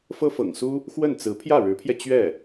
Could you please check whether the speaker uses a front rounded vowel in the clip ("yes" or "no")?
no